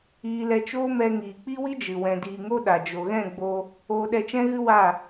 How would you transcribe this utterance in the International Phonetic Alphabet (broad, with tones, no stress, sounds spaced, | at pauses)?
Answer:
iː˧ l ɛ˧ t͡ʃ oː˦ m ɛ˧ ŋ iː˨ k͡p i˦ w i˦ d͡ʒ ɨ˨ w ɛ̃˨ d iː˨ ŋ o˦ ɗ a˨ d͡ʒ o˨ ɣ ɛ̃˦˨ ɡ͡b oː˧ | oː˧ ɗ ɛ˧ t͡ʃ ɛ̃˦ ɣ ɨ˦ w a˦˨